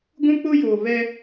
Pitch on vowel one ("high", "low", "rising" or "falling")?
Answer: high